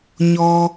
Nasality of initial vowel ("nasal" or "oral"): oral